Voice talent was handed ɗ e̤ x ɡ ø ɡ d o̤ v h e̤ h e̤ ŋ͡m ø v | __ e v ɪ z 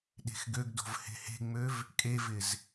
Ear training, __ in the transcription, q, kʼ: kʼ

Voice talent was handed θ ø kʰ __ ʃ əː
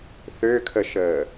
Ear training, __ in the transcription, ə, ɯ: ə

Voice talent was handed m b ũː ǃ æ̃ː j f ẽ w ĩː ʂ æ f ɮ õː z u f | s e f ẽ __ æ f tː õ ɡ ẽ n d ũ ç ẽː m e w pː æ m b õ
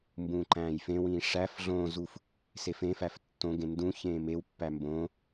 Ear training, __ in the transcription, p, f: f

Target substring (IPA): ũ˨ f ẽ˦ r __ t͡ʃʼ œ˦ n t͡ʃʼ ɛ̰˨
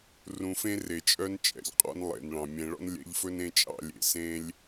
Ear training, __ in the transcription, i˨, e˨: e˨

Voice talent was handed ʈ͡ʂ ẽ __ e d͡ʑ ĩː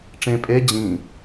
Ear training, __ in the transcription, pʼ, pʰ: pʼ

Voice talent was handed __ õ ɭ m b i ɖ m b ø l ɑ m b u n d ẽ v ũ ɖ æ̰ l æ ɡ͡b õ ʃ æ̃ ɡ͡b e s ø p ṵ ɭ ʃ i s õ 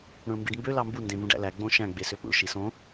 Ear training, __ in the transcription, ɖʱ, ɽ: ɽ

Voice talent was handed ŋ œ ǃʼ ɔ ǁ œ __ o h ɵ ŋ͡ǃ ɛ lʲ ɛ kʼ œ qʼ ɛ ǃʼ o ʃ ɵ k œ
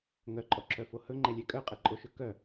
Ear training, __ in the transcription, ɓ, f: f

